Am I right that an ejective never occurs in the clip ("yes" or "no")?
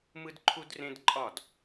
no